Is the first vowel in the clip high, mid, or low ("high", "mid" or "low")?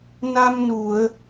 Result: low